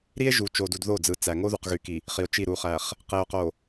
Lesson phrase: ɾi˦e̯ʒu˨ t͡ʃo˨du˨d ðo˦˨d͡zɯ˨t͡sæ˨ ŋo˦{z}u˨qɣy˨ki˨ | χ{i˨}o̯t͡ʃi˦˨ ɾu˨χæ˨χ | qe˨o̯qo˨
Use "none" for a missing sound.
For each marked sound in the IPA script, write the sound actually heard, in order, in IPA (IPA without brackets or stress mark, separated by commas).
ð, i˨